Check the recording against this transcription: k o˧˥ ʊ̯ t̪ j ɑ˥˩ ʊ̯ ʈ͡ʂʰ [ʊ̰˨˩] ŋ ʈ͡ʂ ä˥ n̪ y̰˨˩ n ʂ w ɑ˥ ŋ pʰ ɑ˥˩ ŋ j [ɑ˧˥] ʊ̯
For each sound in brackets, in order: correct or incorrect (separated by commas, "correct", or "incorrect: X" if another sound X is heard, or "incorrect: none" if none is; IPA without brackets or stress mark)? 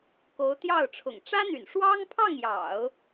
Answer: correct, incorrect: ɑ̰˨˩˦